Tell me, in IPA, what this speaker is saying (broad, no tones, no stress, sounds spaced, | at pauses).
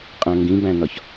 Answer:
qʼ æ̃ ŋ ɡ ĩ b æ̃ n ɒ ç